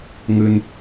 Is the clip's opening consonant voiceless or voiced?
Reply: voiced